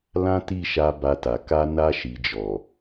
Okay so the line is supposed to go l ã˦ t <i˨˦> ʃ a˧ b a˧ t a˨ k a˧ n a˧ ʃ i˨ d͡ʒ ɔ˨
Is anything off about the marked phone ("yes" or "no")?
yes